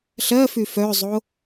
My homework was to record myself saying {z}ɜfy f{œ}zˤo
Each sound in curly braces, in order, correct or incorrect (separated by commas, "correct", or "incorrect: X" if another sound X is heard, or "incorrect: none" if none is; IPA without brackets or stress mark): incorrect: ɬ, correct